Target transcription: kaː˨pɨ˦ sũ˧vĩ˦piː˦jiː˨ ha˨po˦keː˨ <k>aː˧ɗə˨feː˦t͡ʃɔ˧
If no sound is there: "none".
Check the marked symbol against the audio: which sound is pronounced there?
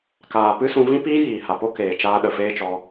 t͡ʃ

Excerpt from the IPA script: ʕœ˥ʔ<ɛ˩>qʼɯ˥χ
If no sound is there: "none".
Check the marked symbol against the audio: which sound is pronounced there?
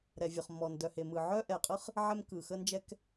ɛ˩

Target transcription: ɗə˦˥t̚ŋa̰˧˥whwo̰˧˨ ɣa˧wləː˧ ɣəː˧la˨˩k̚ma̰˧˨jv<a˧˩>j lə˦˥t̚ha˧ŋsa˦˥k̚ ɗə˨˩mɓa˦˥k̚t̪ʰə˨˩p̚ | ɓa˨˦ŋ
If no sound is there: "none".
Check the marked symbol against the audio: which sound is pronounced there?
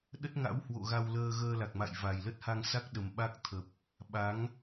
a˨˩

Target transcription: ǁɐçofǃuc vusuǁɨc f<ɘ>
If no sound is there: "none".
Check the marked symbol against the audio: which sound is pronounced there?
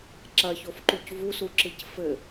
ɘ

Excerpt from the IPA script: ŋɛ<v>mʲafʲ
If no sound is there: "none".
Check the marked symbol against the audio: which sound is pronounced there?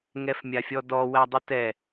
f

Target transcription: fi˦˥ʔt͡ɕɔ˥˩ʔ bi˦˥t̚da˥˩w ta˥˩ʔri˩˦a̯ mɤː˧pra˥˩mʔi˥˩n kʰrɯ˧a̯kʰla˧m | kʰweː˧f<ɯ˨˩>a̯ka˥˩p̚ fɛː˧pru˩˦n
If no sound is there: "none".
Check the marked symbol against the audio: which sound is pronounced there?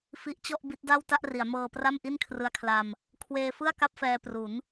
ɯ˥˩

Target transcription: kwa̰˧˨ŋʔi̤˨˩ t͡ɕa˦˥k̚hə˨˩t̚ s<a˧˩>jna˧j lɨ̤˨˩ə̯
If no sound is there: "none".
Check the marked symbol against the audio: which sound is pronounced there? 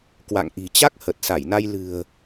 a˧˩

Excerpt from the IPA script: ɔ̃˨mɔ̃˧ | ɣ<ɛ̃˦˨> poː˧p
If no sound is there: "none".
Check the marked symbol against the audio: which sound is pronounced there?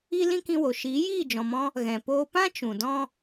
ɛ̃˨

